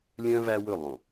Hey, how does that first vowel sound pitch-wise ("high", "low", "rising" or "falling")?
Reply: high